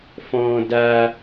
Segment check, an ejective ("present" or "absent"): absent